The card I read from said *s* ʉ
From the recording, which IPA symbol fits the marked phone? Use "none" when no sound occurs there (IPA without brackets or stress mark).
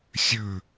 sʲ